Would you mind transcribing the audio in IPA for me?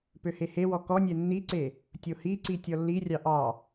p ø h e h e w ɔ k ɔ nʲ ɛ nː i ǀ e | tʲ o h i ǀ i tʲ ɔ lː i rʲ ɑ ʔ ɑ

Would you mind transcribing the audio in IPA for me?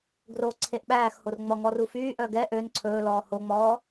ɡ r o ǀʰ e ʔ ɓ æː x h o r ŋ͡m ɔ ŋ ɔ r u f yː ʔ œ ɡ ɛ ʔ ø n ǀʰ ɵː l ɔː h o ŋ͡m ɔː

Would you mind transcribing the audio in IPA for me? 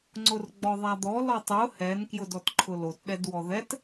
ŋ͡ǀ ʊ r ɡ͡b ɔ ðˤ a d̪ ɔ l ɔ tˤ ʊ h ɛ n k j ʊ d ɔ t ǃʰ ʊ l o t ɗ ɛ d w ɔ ð ɛ t

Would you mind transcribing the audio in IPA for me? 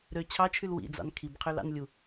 ɾ ø t͡ɕʰ ɑ t͡ʃʰ y l w ḭ d͡z ɑ̰ n kʰ i b qʰ ø l ɑ̰ n lʲ u

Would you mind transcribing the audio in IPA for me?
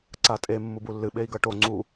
ǀ a tʼ e mː u b u lː ɨ ɓ e i̯ ɡ ʌ ʈ o ŋ͡ǀ u

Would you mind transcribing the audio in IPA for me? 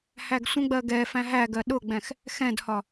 h æ ɡ sʷ ə̃ ɡ͡b ɜ ɡ ɛ f æ̃ ɦ æ ɡ ɜ ɗ ʊ ɡ͡b ɛ̃ x | x ɛ̃ d h ɒ

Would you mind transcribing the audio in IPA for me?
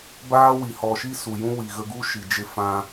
b aː˦ w i˨ h ɔ˨ ʃ i˦ s u˨ j ũ˦ w i˨ ɣ ə˧ ɡ u˦ ʃ i˨ d͡ʒ e˦ f ã˧

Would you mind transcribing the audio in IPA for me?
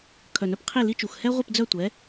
kʰ œ˨˩ n œ˦ p qʰ i˦˨ l i˦ t͡ʃ u˨˩ x h ɛ˦ ʁʷ i˦˨ p d͡z œ˦˨ tʷ ɛ˨˥

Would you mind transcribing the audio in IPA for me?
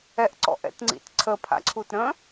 ɛ ʔ ǀ ɔ̰ ʔ ɛ̰ t ŋ͡ǀ ḭ t ǀʰ ə pʰ a̰ ǀʰ u t ɾ ə̃

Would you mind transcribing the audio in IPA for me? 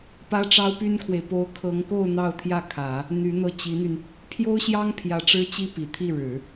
p ä˥ ʈ͡ʂ ɑ˥ ʊ̯ p y˥ n kʰ w e˨ ɪ̯ p o˥ ʊ̯ kʰ ɤ˧˥ ŋ k o˥˧ ʊ̯ n̪ ɑ˥˧ ʊ̯ t̪ʰ j ä˥˩ kʰ ä˨˩˦ | n̪ y˧˥ n̪ ɤ˥˩ t͡ɕ i˧˥ n̪ y˧ n | pʰ j o˥ ʊ̯ ɕ j ɑ˥ ŋ pʰ j ä˧˥ ʈ͡ʂ ɻ̩˥ t͡ɕ i˥ p i˨˩ t̪ʰ i˥˩ ɻ ɻ̩˨˩˦

